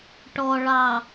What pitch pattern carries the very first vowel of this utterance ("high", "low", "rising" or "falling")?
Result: low